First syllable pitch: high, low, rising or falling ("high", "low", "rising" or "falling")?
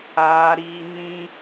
high